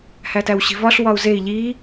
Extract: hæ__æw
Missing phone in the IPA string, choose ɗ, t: t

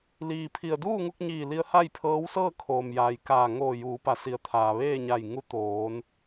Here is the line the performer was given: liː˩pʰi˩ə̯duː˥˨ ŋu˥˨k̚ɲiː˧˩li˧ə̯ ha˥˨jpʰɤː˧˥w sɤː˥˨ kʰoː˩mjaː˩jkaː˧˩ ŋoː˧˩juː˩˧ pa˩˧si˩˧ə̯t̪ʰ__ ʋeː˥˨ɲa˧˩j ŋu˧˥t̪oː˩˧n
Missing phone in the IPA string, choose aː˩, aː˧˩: aː˩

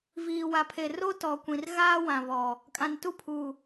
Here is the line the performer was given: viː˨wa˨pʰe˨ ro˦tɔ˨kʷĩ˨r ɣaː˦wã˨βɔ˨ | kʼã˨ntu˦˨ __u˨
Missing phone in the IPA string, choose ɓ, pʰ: pʰ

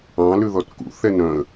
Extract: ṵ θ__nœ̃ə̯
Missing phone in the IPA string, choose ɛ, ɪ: ɛ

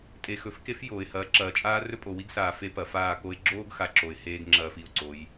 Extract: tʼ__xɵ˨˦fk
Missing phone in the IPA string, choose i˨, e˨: e˨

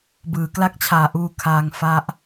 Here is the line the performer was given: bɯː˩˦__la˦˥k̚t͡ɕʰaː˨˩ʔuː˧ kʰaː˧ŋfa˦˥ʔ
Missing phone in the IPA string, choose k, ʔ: k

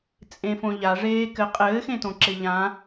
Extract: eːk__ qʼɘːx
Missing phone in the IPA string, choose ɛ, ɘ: ɘ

